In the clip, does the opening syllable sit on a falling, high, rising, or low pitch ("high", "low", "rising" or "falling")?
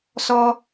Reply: high